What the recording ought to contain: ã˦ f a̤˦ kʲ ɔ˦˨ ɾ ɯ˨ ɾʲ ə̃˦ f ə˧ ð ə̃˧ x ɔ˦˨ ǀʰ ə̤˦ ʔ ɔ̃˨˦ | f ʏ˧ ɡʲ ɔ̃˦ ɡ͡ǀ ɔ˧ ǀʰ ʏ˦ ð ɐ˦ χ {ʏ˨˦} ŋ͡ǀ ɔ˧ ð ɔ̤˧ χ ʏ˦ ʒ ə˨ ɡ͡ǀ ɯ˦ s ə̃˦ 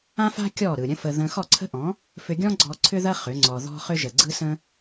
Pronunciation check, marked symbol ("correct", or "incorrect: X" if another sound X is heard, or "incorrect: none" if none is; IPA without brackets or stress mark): correct